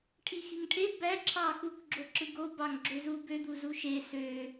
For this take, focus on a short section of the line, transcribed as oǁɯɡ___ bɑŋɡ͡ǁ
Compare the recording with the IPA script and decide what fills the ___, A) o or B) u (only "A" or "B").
A